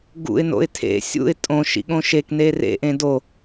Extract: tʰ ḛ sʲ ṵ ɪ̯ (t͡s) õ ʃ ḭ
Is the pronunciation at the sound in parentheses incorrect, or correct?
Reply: incorrect: tʼ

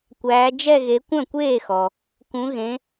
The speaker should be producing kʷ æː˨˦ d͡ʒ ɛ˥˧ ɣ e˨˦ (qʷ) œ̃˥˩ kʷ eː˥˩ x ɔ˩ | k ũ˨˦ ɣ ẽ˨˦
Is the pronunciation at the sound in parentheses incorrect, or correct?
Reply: incorrect: kʷ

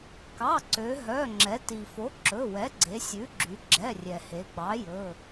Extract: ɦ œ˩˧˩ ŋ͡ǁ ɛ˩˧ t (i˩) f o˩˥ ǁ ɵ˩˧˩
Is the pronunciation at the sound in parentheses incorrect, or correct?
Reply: correct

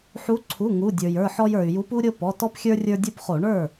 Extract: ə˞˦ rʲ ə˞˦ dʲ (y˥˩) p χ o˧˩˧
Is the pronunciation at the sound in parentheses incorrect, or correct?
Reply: incorrect: u˥˩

